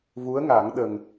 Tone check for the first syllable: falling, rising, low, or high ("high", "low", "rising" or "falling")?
rising